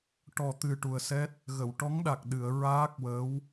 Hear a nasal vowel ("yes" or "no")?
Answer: no